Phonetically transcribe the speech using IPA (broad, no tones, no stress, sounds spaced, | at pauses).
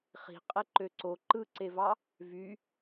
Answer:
χ i̤ qʼ e ǃ ø ǀ o ǃ ɯ ǀ e v ɑ | v y